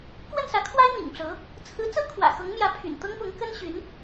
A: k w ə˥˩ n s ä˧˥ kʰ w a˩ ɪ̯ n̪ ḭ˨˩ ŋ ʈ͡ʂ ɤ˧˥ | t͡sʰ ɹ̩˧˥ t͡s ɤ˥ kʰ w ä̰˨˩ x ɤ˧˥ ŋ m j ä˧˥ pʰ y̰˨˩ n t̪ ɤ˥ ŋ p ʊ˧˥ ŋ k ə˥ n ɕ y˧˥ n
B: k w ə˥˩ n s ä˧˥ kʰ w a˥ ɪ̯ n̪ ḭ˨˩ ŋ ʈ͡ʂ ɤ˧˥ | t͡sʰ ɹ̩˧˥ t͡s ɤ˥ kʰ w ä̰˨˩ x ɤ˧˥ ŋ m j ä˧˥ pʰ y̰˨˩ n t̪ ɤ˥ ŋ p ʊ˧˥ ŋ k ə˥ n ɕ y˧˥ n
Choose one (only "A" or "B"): B